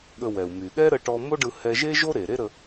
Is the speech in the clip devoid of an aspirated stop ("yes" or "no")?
yes